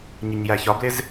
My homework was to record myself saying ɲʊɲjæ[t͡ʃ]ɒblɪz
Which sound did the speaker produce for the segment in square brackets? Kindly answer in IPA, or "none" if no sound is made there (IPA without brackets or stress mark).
ç